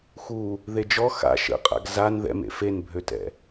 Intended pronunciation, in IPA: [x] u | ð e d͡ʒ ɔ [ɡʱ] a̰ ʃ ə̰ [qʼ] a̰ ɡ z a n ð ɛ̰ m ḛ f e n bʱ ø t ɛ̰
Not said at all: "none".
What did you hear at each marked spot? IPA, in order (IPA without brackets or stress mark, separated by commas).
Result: x, x, qʼ